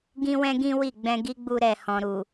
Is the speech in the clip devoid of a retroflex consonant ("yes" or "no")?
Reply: yes